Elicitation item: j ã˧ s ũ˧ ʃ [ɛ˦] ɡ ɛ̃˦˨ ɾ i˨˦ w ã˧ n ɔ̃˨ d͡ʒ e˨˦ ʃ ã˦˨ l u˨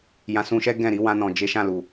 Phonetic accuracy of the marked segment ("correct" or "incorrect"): correct